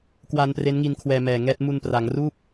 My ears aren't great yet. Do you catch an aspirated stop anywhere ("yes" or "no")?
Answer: yes